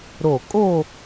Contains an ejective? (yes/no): yes